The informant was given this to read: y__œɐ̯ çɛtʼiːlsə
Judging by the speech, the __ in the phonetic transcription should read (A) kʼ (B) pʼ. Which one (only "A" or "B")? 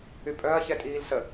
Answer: B